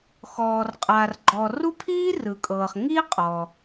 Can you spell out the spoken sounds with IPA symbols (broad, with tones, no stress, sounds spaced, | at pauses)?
x ɔː˩ r qʼ a˩ r ɡ͡ǃ ɔ˩ r u˥ pʰ iː˥ r ɯ˩ kʼ ɤː˩ χ ŋ i˥ qʼ ɔ˩